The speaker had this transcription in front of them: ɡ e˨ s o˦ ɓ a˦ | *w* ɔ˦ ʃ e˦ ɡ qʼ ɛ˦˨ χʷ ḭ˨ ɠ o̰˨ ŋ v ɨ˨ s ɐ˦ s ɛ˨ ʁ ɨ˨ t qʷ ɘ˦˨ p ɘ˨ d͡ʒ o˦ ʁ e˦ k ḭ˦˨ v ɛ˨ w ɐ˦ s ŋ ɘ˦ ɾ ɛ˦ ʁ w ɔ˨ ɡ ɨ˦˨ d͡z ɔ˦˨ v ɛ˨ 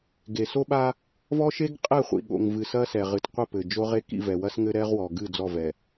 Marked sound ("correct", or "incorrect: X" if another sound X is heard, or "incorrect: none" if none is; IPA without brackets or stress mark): incorrect: v